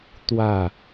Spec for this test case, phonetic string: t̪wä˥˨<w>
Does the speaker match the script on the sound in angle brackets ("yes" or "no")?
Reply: no